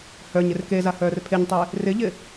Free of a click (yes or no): yes